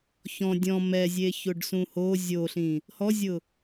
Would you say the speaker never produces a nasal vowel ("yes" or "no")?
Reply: no